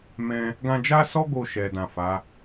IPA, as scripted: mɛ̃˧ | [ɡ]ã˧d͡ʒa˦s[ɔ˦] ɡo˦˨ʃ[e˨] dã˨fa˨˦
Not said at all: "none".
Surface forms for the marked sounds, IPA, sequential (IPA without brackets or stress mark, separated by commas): ɡ, ɔ˦, ɛ˨